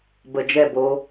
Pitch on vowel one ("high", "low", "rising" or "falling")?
low